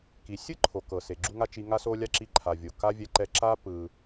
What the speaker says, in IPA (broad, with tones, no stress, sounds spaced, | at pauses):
k i˩ sʲ ɯ˥ ǃʰ o˩ k ɤ˩ s e˩ ɡ͡ǁ u˦ ŋ a˦ t͡ʃ i˨ ŋ a˦ s o˦ lʲ a˥ ǁ i˦ ǃʰ a˨ vʲ o˩ k a˥ vʲ ɛ˦ ǃ ɛ˦ ǁ a˥ p ɯ˨